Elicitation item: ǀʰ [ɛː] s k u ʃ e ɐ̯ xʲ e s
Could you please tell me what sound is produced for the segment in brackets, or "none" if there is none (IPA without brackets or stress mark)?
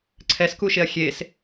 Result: ɛ